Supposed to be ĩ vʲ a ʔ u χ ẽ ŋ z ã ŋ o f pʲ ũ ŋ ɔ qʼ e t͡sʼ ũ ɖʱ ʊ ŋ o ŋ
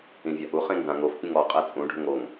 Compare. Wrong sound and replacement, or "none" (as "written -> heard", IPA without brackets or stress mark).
none